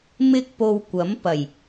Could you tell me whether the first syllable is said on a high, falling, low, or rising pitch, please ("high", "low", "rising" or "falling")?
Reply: high